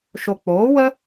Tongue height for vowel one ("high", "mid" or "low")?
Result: mid